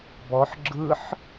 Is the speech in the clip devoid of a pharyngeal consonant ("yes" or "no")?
no